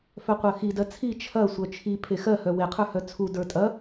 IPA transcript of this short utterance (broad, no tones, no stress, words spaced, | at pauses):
fœqʷɜxidɜ t͡sʰi t͡ʃʰɐ sʷœt͡ʃʰi pʰexɜhœ weqʰə˞hœ t͡sʰu də˞tʼɐ